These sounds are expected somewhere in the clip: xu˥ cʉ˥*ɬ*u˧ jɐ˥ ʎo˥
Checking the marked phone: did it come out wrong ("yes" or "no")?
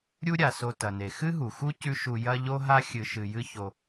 yes